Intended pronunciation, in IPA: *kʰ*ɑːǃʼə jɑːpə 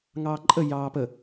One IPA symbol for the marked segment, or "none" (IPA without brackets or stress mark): ŋ